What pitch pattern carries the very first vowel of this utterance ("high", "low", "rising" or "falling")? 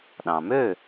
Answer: low